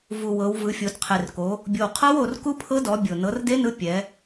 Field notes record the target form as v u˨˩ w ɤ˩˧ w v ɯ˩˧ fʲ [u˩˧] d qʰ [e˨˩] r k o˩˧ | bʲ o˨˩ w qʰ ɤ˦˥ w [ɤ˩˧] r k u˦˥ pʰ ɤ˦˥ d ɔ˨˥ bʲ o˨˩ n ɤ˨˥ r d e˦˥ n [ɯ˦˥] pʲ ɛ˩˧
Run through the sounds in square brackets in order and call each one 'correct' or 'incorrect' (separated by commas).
incorrect, correct, incorrect, incorrect